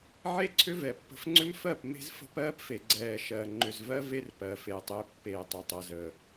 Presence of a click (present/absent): present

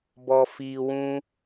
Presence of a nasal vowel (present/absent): present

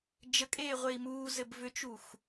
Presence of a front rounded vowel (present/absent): present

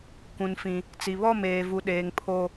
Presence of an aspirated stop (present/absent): present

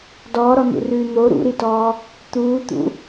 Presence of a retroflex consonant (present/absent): absent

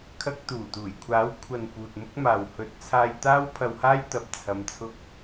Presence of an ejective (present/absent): absent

